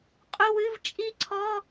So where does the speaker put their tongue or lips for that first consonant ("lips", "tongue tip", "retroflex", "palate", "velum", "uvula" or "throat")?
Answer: uvula